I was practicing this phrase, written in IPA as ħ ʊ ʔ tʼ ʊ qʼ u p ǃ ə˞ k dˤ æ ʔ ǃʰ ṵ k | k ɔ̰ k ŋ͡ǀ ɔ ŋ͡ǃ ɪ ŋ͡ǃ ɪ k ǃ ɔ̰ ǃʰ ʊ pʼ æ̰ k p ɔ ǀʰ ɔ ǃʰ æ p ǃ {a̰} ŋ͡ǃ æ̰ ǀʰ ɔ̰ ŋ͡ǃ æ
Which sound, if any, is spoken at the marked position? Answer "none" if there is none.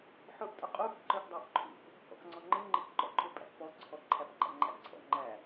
æ̰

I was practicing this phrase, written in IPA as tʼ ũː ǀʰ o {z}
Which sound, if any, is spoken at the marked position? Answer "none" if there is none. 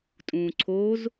z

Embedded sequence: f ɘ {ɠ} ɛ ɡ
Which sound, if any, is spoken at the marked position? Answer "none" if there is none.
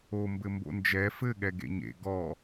ɠ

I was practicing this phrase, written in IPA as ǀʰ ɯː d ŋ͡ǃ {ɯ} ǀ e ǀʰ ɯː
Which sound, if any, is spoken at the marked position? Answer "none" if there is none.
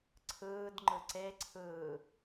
ɯ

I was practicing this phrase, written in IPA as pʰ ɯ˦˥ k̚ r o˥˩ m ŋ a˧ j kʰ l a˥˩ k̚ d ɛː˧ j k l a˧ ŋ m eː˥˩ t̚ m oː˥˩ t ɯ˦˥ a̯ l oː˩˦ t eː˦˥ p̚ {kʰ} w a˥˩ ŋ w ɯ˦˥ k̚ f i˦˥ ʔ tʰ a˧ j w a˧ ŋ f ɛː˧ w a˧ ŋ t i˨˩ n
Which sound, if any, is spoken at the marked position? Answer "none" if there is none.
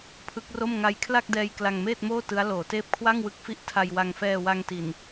kʰ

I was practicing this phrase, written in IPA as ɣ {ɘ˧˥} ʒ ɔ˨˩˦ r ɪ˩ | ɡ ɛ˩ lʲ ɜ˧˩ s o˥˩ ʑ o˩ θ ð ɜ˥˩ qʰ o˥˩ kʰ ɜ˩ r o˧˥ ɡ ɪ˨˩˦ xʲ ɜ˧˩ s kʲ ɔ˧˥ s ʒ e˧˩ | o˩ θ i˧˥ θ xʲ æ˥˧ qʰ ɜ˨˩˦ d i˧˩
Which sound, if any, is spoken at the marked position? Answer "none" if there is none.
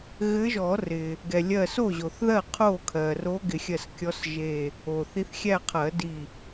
ɘ˧˥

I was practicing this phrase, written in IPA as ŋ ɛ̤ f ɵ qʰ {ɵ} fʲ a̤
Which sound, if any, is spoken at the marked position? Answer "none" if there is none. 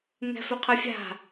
ɵ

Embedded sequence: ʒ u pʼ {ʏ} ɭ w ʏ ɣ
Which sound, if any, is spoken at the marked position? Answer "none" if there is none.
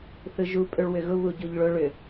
ʏ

